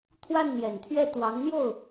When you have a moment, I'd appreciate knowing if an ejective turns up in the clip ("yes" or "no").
no